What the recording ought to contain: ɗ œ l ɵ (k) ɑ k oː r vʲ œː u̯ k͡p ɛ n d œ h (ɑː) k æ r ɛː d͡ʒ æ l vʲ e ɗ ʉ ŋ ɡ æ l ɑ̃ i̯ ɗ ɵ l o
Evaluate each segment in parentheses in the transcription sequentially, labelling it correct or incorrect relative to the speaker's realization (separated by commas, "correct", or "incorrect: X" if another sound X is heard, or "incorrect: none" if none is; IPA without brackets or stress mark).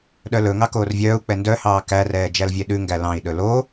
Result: incorrect: ŋ, correct